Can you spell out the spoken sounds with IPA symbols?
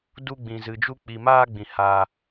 du˦ ɡ͡bĩ˧zɨ˧d͡ʒu˦ k͡pi˧maː˦ɡ͡bĩ˧ ha˦

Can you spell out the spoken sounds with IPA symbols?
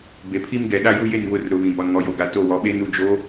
be˨pʰi˦m ɡɛ˨ ɗa˦ju˦je˦˨n βʊ˦˨rɾʊ˨ βĩ˨bɔ˨nŋɔ˨ jo˨ɡa˨ to˦˨ wɔ˨ɓe˦nu˨d͡ʒo˨˦

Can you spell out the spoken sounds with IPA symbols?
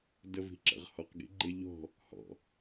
dəvi̤ǁə̰ʁ hɔq ɡḭɡ͡ǃɪ ʎɔ̤ | hɔ̰

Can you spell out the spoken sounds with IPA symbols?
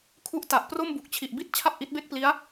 kʰu˦˥ʔta˨˩ʔ pro˥˩mbu˨˩k̚t͡ɕʰi˨˩ʔ bi˥˩t̚ t͡ɕʰa˥˩p̚ʔi˦˥t̚ be˥˩k̚pli˦˥a̯

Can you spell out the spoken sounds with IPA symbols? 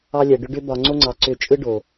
ɑ˧lʲɛ˨ ɖʏ˧ɖʏ˧ bɒ˨ŋ͡ǀo˧ŋ͡ǀɑ˨ ǀʏ˧t͡ʃʼɯ˦ ɖo˨

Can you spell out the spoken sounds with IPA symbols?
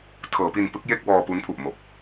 tʰɤː˩˦pi˧npɯ˦˥k̚ je˥˩k̚wɔː˧pu˦˥npʰu˨˩ʔ mo˨˩k̚

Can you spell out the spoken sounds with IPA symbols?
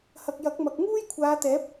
hɐ˨k̚jɐ˨˥k̚mɐ˨k̚ ŋuː˥jkʷʰaː˨˧t̪ɛː˨˥p̚

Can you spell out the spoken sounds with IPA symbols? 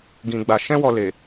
ɡĩ˧ɡ͡ba˧ ʃɛ̃˦wɔ˧ le˨

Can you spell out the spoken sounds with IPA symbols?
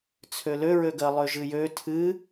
t͡sʰøløɹøɡɜ lˠøʒɨjø tʰɨ

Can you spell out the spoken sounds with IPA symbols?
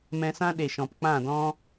mɛ̃˧sã˦ ɗe˨ʃɔ̃˨p k͡pã˦˨dɔ̃˦

